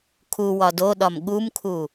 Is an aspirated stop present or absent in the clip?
present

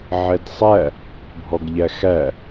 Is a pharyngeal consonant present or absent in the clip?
present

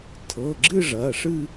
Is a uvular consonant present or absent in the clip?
absent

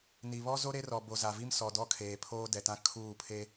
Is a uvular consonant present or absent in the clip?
absent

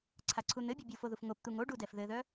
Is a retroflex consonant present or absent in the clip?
present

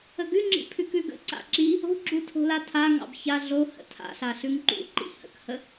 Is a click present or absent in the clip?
present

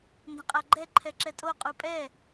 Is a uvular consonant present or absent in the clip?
present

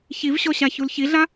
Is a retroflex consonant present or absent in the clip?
absent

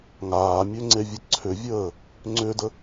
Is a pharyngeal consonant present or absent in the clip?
absent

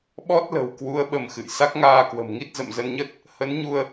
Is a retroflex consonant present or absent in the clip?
absent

